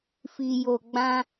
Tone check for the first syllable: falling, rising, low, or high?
low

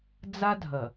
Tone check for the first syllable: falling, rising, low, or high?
high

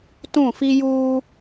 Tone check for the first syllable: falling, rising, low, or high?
falling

